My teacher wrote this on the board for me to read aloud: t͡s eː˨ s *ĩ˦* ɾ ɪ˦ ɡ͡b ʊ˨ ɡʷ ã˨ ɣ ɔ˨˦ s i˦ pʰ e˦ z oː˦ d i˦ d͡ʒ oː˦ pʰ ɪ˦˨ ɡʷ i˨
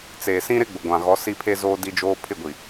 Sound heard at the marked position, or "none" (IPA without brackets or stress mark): ĩ˦